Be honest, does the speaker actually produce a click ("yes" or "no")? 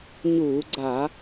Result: yes